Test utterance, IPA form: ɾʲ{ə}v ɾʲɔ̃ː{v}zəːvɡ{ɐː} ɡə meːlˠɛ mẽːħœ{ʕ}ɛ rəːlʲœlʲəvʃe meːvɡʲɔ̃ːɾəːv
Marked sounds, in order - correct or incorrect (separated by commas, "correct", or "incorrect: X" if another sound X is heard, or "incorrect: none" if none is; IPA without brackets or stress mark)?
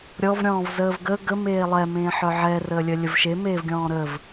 incorrect: ɔ, correct, incorrect: əː, correct